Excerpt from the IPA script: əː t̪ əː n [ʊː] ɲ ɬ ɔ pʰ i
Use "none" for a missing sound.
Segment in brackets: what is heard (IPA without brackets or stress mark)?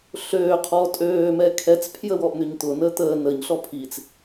əː